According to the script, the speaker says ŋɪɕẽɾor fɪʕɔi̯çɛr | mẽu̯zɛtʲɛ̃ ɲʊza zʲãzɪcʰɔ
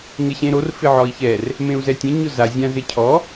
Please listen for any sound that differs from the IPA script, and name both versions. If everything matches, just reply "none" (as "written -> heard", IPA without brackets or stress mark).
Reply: none